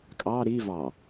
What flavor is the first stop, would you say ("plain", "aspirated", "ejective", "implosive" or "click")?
ejective